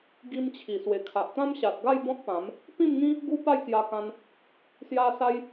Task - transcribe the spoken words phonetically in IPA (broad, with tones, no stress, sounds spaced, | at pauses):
ɡ i˧ m t͡ɕʰ i˨˩ s w e˨˩ kʰ a˨ ʔ t̪ ã˦ m ɕ a˨ t̚ ɡ a˥˧ j b ɔ̃˦ t̚ p ã˨˦ m | p ĩ˥˧ m ŋ ĩ˦ | ɡ u˦ p a˥˧ j k j a˧ k ã˧ n | s j a˦ s a˦ j